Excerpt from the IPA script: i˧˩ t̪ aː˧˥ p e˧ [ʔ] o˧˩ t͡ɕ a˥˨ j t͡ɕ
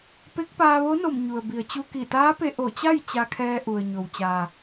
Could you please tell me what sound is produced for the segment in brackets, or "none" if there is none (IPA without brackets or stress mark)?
ʔ